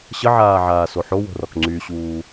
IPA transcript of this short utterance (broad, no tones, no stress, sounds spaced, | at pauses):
ɕ ə ʕ aː ʕ aː s o ħ o w o̤ r ɔ k ŋ͡ǀ y ɕ uː